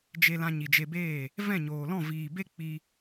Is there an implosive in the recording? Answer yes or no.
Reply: no